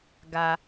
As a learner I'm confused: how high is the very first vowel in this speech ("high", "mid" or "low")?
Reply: low